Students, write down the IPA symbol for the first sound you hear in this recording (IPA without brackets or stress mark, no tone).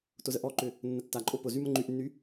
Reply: t